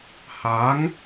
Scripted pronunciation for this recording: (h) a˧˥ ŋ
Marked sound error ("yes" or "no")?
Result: no